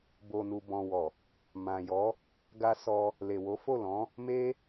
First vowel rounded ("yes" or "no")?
yes